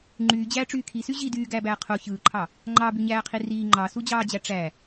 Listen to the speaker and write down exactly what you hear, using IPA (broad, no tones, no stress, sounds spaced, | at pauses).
ŋ͡ǃ yː d͡ʑ æː ʈ͡ʂ yː kʰ i s y ʑ i d yː ɡ æː b æː qʰ o ç ɯː ǃʰ ɑ | ŋ͡ǃ ɑ b y ɲ æː qʰ i r iː ŋ͡ǃ ɑ s u d͡ʑ ɑː d͡ʑ æ ʈ͡ʂ æ